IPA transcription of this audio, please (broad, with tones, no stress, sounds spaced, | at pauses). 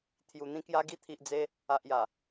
t̪ʰ j u˨˩ n̪ ĩ˧ k j a˧ ɡ i˧ t̪ʰ i˨ ʔ d͡z e˧ | a˨ ʔ j a˨˩